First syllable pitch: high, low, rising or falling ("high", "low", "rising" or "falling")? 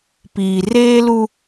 low